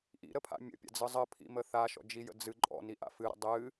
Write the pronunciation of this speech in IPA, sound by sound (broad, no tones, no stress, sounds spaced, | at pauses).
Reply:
ʔ ḭ ɾ ə pʰ a̰ mʲ ə̰ pʲ a̰ d͡z ɯ zˤ ə pʰ ḭ m ə θ a ʃ ɔ̰ d͡ʒ i j ə̰ d͡z ɨ ǃʼ ɔ̰ n i ʔ a̰ f ɨ ɾ ə̰ dˤ ɨ